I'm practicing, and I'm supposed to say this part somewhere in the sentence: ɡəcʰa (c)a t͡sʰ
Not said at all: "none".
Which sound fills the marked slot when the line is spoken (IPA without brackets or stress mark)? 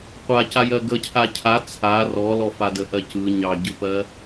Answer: cʰ